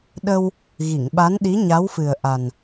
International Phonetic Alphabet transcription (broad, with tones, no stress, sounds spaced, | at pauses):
ɗ ə˧ w | ɣ i˨˩˨ ŋ ɓ a˧˥ n ɗ i˧˥ ɲ a˧˥ w f ɨ˨˩ ə̯ ʔ a˨˩ n